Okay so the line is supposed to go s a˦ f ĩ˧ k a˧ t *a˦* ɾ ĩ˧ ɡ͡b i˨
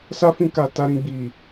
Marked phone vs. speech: incorrect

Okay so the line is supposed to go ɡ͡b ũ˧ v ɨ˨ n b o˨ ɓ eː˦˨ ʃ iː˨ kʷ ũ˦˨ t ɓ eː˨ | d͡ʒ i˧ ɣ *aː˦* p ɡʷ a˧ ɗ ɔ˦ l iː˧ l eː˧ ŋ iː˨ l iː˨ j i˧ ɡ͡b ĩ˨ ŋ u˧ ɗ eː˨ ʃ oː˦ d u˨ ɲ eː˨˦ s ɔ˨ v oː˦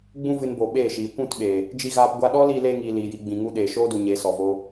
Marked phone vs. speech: incorrect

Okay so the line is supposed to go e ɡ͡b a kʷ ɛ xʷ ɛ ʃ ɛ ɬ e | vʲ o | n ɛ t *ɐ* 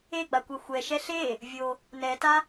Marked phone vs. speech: incorrect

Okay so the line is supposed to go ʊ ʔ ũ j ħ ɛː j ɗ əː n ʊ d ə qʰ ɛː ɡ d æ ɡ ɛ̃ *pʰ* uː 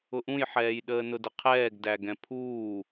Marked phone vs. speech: correct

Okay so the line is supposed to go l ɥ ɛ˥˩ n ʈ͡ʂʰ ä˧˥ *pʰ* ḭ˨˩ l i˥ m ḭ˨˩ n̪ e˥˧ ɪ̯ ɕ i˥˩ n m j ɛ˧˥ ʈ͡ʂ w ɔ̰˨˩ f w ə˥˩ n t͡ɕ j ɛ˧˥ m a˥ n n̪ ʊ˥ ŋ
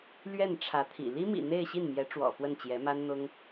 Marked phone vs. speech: incorrect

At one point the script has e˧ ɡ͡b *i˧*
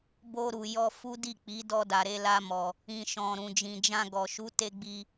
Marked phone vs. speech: correct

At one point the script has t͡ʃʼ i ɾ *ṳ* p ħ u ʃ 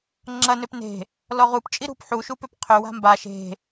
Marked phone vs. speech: correct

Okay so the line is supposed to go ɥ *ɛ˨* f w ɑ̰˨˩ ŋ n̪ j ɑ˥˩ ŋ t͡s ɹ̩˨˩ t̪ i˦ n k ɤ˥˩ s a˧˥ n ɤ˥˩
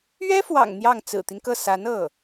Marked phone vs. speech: incorrect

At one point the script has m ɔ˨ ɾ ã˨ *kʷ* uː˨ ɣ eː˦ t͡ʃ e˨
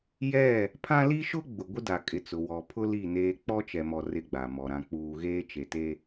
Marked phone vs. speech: incorrect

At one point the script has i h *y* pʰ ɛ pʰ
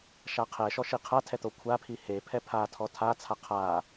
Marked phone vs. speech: incorrect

